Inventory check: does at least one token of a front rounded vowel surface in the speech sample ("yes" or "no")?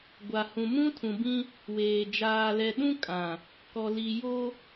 no